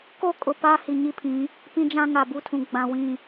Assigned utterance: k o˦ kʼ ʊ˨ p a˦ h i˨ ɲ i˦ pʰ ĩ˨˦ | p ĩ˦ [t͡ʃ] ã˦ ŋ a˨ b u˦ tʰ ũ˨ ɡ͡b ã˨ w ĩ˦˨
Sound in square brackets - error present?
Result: yes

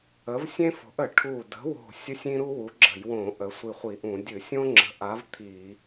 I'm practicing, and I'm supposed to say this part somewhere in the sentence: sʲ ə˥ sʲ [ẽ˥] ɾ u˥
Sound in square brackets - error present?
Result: yes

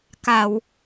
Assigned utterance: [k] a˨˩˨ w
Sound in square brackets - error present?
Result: no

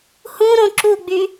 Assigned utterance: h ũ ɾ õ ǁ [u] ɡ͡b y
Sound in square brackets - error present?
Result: no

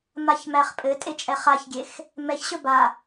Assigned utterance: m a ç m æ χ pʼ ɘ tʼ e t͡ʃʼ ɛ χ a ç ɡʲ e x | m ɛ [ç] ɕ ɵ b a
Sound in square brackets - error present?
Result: no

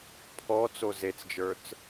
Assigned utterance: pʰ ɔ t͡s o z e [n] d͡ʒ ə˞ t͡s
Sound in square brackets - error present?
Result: yes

